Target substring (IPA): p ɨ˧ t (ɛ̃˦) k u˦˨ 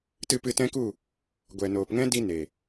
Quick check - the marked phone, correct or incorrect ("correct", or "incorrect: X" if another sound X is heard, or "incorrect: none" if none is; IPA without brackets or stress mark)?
correct